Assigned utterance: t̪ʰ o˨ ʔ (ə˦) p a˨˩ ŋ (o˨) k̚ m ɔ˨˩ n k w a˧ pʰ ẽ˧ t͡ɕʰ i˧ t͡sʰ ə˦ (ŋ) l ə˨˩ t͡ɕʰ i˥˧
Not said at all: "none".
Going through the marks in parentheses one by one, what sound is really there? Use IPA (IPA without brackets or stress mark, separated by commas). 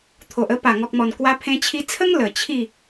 ə˦, ɔ˨, ŋ